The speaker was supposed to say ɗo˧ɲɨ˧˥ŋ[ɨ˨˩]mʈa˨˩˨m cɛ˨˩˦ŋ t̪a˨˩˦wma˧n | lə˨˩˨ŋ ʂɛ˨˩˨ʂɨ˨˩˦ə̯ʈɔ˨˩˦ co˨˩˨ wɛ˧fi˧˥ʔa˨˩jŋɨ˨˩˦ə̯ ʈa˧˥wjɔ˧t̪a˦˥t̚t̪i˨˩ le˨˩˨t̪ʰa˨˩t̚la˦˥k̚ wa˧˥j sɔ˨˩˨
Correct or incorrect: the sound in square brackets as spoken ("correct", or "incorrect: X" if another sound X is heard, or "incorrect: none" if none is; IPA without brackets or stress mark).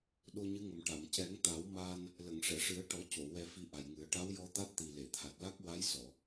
incorrect: ə˨˩